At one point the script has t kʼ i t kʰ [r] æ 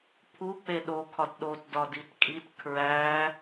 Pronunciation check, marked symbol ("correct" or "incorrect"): incorrect